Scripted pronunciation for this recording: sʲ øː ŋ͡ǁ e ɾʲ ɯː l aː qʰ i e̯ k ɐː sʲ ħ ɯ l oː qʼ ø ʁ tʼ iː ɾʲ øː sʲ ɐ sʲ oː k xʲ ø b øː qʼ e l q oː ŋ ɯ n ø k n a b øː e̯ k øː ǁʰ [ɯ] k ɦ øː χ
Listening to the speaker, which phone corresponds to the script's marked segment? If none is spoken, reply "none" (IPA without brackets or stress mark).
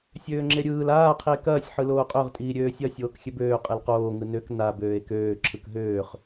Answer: ɯ